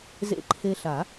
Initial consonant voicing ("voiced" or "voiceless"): voiced